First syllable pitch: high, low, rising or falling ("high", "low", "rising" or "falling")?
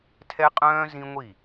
high